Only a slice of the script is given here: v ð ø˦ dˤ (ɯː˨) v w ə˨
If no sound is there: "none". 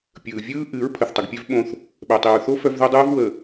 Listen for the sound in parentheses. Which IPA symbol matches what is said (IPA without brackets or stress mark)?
ɯː˦